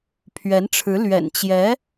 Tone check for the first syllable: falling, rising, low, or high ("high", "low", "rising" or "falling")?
rising